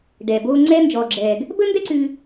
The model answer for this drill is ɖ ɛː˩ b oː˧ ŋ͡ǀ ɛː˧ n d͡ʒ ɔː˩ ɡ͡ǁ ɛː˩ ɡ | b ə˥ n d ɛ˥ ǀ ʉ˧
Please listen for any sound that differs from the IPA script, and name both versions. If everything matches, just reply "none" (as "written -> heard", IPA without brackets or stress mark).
none